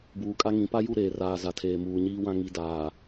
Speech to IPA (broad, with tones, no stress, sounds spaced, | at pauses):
b uː˨ kʼ a˦ ŋ ĩ˨˦ p a˦ j u˦˨ ɾ eː˨ r aː˨ z a˨ tʰ eː˨ m uː˨ ɲ iː˦ w ã˦ ŋ i˨ d aː˨